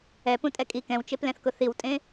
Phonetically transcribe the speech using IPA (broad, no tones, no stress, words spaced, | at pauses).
ɛpũtʼɛ kʼi kɛ̃wt͡ʃeplɛ̃θkʊ θiwtʼẽ